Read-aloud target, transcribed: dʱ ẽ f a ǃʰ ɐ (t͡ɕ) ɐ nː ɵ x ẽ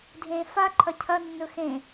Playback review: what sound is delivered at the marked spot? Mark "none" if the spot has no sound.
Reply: cʰ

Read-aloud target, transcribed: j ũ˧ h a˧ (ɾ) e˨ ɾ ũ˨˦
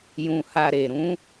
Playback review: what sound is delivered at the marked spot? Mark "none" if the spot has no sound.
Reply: ɾ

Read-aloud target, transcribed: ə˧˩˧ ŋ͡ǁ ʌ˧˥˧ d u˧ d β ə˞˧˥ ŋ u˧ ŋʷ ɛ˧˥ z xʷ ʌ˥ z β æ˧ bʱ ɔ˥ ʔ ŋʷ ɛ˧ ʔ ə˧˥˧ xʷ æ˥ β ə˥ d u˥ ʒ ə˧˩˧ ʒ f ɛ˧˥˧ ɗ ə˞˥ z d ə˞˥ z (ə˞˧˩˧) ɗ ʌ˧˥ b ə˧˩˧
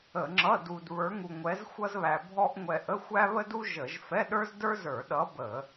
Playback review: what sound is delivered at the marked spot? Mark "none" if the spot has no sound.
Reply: ə˞˧˩˧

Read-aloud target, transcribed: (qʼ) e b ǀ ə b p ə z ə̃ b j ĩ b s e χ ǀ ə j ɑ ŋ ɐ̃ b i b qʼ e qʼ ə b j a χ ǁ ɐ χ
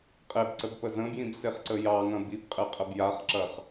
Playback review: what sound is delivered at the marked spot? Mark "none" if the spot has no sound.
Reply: qʼ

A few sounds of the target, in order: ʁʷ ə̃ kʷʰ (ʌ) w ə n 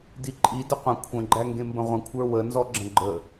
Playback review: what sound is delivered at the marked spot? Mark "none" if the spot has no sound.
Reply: ə˞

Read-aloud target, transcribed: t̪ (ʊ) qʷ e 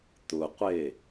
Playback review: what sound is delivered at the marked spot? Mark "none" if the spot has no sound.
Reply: ʊ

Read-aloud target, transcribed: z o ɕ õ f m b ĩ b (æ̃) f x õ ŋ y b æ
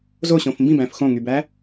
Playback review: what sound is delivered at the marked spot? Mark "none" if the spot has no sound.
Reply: æ̃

